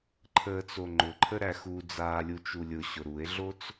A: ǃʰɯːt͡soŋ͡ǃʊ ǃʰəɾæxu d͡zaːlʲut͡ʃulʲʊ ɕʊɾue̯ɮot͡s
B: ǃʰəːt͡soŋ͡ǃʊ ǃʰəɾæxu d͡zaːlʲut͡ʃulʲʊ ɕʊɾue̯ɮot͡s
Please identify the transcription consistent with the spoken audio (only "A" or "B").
B